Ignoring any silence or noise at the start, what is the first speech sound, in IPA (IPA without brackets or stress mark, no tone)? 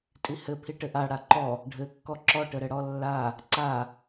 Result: tʼ